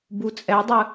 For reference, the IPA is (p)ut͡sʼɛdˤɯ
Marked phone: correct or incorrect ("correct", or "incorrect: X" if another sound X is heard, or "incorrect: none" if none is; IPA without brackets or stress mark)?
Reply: incorrect: b